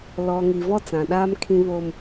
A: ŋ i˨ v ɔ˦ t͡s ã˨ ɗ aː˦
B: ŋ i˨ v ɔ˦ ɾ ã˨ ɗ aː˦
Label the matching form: A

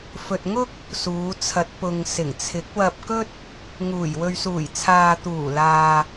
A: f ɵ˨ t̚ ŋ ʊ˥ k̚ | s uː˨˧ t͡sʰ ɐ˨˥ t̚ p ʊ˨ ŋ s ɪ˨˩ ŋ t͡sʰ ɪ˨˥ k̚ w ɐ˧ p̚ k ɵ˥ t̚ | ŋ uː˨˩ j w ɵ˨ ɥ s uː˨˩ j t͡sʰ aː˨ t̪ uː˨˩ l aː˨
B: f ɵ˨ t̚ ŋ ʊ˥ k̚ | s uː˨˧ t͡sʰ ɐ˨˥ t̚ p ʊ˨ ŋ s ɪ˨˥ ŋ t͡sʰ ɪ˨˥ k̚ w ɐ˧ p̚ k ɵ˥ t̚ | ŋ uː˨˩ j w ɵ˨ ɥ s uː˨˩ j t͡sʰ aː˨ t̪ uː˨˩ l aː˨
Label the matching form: A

